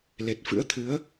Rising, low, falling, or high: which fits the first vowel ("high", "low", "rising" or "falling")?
low